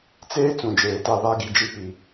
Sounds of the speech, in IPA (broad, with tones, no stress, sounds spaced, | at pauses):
t͡s eː˦ t͡s ũ˨ d͡ʒ eː˨ t a˦˨ β a˦ ɡ i˨ d͡ʒ i˦ p i˨